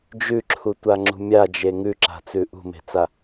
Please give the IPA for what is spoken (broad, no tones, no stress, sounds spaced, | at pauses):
d͡ʒ ʉ ǁʰ u tʷ a ŋ͡ǁ ṳ mʲ a d͡ʒ e ŋ ʉ ǁ a̤ t͡s ʉ ʔ ṳ m e̤ t͡s a